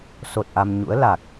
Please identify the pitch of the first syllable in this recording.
low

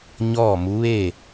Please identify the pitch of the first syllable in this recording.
falling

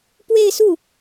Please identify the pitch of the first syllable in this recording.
falling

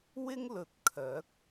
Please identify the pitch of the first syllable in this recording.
high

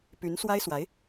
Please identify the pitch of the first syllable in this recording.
rising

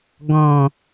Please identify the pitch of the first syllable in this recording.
low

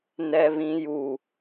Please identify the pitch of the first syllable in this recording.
high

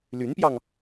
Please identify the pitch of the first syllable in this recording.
rising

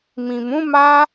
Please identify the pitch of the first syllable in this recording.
low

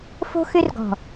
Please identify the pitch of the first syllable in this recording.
high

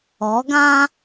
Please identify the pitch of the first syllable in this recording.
rising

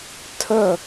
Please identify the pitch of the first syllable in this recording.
falling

